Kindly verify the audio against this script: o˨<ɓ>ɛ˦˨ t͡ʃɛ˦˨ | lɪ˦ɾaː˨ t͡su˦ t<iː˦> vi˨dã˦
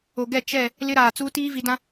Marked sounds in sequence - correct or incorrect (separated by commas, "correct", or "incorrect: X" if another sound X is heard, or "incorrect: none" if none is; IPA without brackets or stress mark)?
incorrect: ɡ, correct